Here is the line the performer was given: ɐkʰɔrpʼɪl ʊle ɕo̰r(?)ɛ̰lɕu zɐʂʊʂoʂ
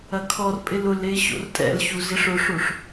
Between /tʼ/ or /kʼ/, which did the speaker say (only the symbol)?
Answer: tʼ